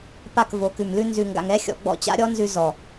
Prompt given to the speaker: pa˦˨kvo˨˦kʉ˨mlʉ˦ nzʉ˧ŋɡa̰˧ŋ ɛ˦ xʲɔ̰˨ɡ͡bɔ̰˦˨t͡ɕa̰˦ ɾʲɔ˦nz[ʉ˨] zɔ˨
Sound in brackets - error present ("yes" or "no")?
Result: yes